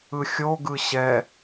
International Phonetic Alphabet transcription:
ɯ xʲ o ɡ ɯ ɕ ɛ

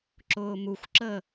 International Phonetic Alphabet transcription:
ǁ ʊː m u xʷ ǁ əː

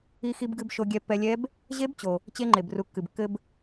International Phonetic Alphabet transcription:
i˧ x i˧ b ɡ ɨ˧ b ʃ o˧ ɡʲ ɛ˧ pː ɛ˧ lʲ ɛ˦˥ b | ʑ e˦˥ b t͡ɕ o˩ | t͡ɕ e˧ ŋ͡ǃ e˩ b r u˩ kː ɨ˩ b kː ɘ˧ b

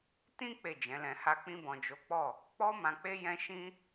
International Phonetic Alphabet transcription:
t ĩ˦ k͡p e˦˨ d͡ʒ ɛ̃˨˦ l ɛ̃˧ h a˦ k͡p ĩ˧ b ɔ̃˨ d͡ʒ o˨˦ k͡p ɔ˦˨ | k͡p ɔ˦ m ã˧ k͡p e˦ j ɛ̃˦ ʃ ĩ˦

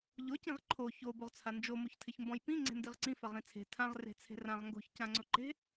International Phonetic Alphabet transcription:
ʎ ʊ c ĩ ʁ ǃʰ o ç o b o ʁ t͡sʰ a n d͡ʒ o m o ç tʰ ɪ ç m b ɔ̃ j p ĩ ŋ͡ǀ e̤ n d i ʁ ǀ ĩ f a ʁ ĩ t͡sʰ e̤ tʰ ã ʁ r e̤ t͡sʰ e̤ r ã ʁ ŋ ɡ o̤ ç c ã ŋ͡ǀ ʊ ǃ e̤

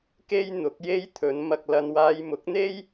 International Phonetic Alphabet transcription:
k e˥ j n̪ ʊ˨˥ k̚ j e˥ j t̪ʰ ɵ˨˧ n m ɐ˧ k̚ l ɐ˧ n w aː˧ j m ʊ˨˥ k̚ n̪ e˥ j

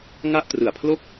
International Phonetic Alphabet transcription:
ŋ a˥˩ ʔ t r ɯ˨˩ a̯ pʰ l o˥˩ k̚

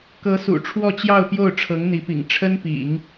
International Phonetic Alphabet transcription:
k ɤ˧˥ s ṵ˨˩ ʈ͡ʂʰ w ɔ˥˧ t͡ɕ j ɑ˥˧ ʊ̯ p j o˥˩ ʊ̯ ʈ͡ʂʰ ɤ˧˥ ŋ n̪ i˧˥ p ḭ˨˩ ŋ ʈ͡ʂʰ ə˥ n p ḭ˨˩˦ ŋ

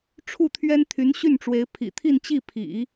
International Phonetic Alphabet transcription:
ʈ͡ʂʰ u˥˩ t̪ʰ ɥ ɛ˥ n t̪ʰ y˧˥ n ɕ y˥˩ n ʈ͡ʂ w e˧˥ ɪ̯ pʰ ḭ˨˩ t̪ʰ i˥˧ n t͡ɕ i˥˩ pʰ ḭ˨˩˦

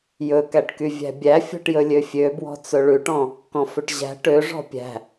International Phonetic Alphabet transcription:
j ɵ k æ ʈ k y vʲ æ̤ bʲ æ fʲ ɔ̤ ʈ j ɵ lʲ ø fʲ ø b w ɔ̤ t͡s ɵ ɭ ʉ ʈ ɔ̃ | k ɔ̃ f ø ʈ ʑ æ̤ ʈ ø ʐ ɔ̤ pʲ æ̤

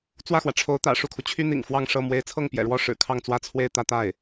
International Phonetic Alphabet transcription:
t͡s w ä˥˩ x w ä˩ ʈ͡ʂʰ o˧˥ ʊ̯ t̪ ä̰˨˩ ʂ u˥˩ kʰ u˩ t͡ɕʰ y˥ n̪ ḭ˨˩ ŋ f w ɑ˥˧ ŋ ʂ ɤ˥˩ m w e˧˥ ɪ̯ t͡sʰ ɤ˥˩ ŋ p j ɛ̰˨˩ ɻ w ɔ˥˩ ʂ ɻ̩˨˩ kʰ ɑ˥˩ ŋ t͡s w ä˥ t͡sʰ w e˥˧ ɪ̯ t̪ ä˥˧ t̪ a˥˩ ɪ̯

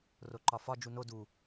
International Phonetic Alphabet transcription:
r o ǃ ɒ f ɒ d͡ʒ u n o d u

